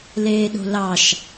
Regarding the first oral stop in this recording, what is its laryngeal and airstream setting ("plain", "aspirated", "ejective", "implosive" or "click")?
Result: implosive